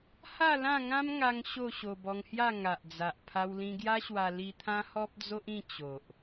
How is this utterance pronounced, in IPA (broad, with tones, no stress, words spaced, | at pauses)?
ha˥˧lã˥˧ŋã˦mŋa˧ŋ ɕo˥˧ ɕo˧bɔ˧ŋhja˥˧ ŋa˨ʔd͡za˨ʔ pʰa˧wlĩ˧ɡja˦ɕwa˧ li˧ t̪ʰã˦hɔ˦p̚d͡zo˦ʔĩ˥˧ t͡ɕo˨ʔ